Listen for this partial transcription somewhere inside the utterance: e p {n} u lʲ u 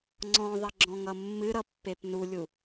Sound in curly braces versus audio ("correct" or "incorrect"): correct